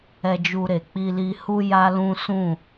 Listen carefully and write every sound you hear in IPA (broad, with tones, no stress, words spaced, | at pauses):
ɛ˧d͡ʒu˧ɾe˨ k͡pi˧li˧hu˦ ja˦lũ˦ sũ˦˨